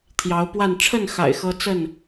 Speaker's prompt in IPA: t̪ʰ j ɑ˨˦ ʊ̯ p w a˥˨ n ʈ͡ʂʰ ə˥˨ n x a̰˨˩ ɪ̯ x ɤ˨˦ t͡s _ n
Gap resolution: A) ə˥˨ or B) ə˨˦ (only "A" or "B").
A